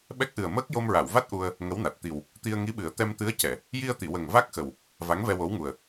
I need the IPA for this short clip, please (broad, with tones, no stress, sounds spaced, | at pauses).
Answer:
ɓ ɛ˦˥ k̚ ʔ ɨ˨˩ ə̯ m əː˦˥ k̚ j o˧ m ɹ a˨˩˨ w v a˦˥ t̚ ʔ u˧ ə̯ | ŋ ə˧˥ w n a˨˩ t̚ t̪ i˨˩ w | t̪ i˧ ə̯ ŋ i˧˥ ɓ ɨ˨˩˦ ə̯ t̪ ɛ˧ m t̪ ɨ˧˥ ə̯ c ɛ˨˩˨ | j i˧ ə̯ t̪ i˨˩˨ w ə˨˩ ŋ v a˦˥ k̚ x ə˨˩ w | v a˧˥ ŋ v ɛ˧ w o˧˥ w ŋ u˨˩ ə̯